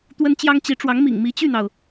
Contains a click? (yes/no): no